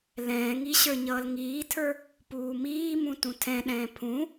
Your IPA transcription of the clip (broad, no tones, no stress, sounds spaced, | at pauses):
l ɛ̃ː ŋ i ɕ ə˞ ɲ ʌː l ŋ iː tʰ ə˞ | p uː m iː m ũ t ũ tʰ ɛ̃ ɗ ɛ̃ː pʰ ũ